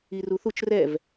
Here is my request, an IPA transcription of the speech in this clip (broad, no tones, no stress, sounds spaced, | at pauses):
i r u θ u t͡ʃ r ɛ v